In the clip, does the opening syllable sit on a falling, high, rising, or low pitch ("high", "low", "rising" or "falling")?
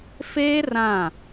high